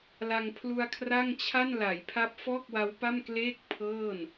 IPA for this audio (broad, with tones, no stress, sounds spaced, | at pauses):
l a˧ ŋ pʰ l u˧ a̯ kʰ r a˥˩ ŋ t͡ɕʰ a˥˩ n l a˩˦ j pʰ a˦˥ p̚ f ɔː˥˩ k̚ w a˦˥ w p a˥˩ m k l eː˥˩ k̚ pʰ ɤː˥˩ n